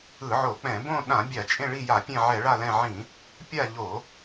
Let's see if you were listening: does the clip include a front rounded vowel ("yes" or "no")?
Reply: no